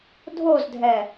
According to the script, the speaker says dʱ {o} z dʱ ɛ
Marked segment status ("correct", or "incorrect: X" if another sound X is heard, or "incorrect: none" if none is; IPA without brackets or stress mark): correct